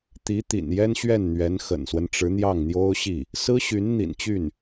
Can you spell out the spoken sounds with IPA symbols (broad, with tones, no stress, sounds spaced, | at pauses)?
t̪ i˧˥ t̪ ḭ˨˩ n j ɛ˥ n ɕ ɥ ɛ˥˩ n n̪ ɥ ɛ˧˥ n x ə̰˨˩ n s w ə˦ n ʈ͡ʂ ɻ̩˧˥ n̪ j ɑ˥˩ ŋ n̪ j o˥ ʊ̯ ɕ i˥˩ | s ɹ̩˥ ɕ y˧˥ n n̪ ḭ˨˩ n t͡ɕ y˥˩ n